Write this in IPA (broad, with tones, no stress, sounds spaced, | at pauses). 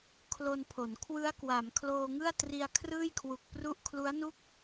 kʰ l o˧ n pʰ o˩˦ n kʰ w ɯ˦˥ a̯ k w a˩˦ m kʰ l oː˧ ŋ ɯ˥˩ a̯ t r i˧ a̯ kʰ r ɯː˥˩ j kʰ w u˨˩ k̚ p r u˥˩ ʔ kʰ l u˦˥ a̯ n u˥˩ k̚